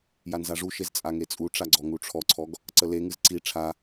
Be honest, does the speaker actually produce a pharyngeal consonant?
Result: no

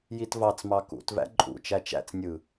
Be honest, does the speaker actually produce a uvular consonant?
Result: no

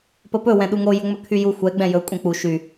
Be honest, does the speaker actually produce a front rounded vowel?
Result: yes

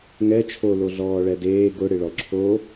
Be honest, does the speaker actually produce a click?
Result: yes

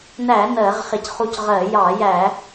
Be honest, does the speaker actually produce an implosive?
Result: no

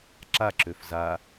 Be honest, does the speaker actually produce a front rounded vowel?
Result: yes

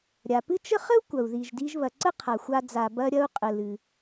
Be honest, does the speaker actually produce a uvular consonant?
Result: yes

